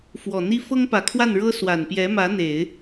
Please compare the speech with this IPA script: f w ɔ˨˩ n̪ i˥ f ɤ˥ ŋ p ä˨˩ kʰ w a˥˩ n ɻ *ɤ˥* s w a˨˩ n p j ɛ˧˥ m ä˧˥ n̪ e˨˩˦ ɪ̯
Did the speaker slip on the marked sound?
no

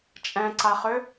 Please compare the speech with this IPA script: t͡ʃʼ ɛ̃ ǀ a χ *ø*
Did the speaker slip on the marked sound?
no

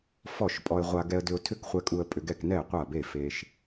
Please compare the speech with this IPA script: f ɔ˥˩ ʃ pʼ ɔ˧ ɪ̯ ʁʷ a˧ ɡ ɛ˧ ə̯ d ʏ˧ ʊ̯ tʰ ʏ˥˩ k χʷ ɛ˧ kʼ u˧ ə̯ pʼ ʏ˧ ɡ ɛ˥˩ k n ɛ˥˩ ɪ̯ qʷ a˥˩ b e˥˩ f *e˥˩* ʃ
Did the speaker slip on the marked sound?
yes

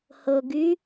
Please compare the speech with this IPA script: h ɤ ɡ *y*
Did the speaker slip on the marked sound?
no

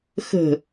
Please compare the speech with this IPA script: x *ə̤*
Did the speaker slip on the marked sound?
no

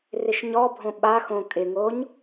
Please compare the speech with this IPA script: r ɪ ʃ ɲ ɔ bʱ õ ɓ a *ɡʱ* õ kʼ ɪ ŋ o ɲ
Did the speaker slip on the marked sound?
yes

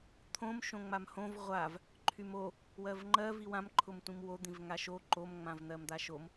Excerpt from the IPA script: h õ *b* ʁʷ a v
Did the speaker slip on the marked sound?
yes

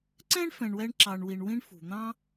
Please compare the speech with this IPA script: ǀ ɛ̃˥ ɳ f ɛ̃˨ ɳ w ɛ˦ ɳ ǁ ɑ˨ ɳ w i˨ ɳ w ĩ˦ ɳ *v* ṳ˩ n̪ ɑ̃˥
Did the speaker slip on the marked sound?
yes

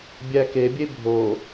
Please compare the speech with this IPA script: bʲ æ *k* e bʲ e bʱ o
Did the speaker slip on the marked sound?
no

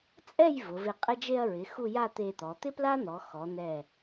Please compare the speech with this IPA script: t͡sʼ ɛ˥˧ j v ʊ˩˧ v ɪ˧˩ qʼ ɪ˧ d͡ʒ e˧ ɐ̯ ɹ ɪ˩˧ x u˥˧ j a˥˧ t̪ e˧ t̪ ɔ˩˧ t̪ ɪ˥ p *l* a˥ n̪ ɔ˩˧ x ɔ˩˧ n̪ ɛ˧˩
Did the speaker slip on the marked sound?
no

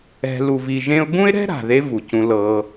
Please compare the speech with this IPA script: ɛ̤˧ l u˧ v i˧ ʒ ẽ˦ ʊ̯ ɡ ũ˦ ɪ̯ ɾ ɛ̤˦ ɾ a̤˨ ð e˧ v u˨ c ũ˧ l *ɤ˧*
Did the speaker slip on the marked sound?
no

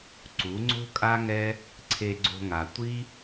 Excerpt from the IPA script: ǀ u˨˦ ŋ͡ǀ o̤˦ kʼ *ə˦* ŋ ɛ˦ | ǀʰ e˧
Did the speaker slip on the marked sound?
yes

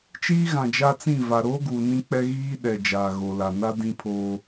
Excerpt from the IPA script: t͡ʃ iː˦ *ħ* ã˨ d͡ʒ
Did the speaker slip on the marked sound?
yes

